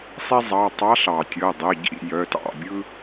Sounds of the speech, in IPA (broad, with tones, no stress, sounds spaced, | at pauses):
sˤ i˥ zˤ ɑ˩˧˩ tˤ ɑ˧˥ ɬ ɑ˩ tʲ ɤ˩˧˩ dˤ ə˩˧˩ ɟ ḭ˥˨ j œ˩˧˩ t ɑ̰˥˨ bʲ ɯ˥